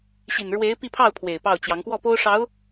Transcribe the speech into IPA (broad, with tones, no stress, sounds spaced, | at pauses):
ɕ i˨˩ n ɻ w e˧˥ ɪ̯ p i˥˧ pʰ ɑ˥˩ ʊ̯ pʰ w e˨˩ ɪ̯ p ɑ˥˩ ʊ̯ t͡ɕ j ɑ˧˥ ŋ k w ɔ˥˩ p o˥ ʊ̯ ʂ ɑ˧˥ ʊ̯